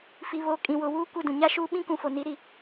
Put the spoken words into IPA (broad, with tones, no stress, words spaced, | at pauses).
fi˨βo˨˦ kʼĩ˨wʊ˨wuː˦kʷɪ˦˨ dũ˨ɲa˦ʃuː˦ ɓĩ˦kũ˨fo˨ni˨˦ ɾi˦˨